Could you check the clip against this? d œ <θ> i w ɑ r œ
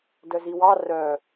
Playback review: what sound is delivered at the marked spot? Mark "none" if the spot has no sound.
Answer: z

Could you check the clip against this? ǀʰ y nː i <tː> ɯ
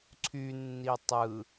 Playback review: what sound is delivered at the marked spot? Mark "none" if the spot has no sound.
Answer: tˤ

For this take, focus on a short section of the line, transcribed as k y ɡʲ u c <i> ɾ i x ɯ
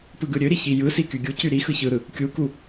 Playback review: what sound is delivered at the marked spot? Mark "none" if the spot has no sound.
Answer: y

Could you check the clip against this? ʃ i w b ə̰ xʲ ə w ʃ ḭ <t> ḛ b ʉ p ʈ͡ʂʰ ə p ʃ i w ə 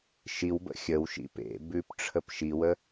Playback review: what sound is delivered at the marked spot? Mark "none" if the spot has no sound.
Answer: p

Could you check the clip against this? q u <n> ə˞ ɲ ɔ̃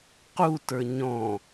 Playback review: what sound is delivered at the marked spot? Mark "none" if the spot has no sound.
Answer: t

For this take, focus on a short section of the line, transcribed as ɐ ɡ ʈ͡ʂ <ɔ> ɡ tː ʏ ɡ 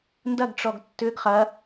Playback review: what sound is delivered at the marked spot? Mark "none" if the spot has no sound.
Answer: ɔ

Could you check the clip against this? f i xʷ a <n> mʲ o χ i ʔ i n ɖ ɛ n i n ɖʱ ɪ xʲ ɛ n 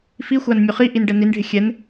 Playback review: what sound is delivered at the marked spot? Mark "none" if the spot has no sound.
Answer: n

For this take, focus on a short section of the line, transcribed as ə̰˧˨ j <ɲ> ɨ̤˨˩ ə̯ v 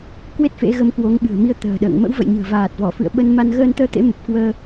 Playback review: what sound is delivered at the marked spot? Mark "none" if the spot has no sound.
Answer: ɲ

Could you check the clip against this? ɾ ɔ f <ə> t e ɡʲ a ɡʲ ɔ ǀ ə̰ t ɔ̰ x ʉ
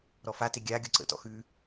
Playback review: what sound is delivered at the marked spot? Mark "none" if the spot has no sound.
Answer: a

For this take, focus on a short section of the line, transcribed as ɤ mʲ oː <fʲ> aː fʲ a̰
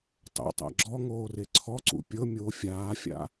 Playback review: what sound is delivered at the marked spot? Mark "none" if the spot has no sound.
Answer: fʲ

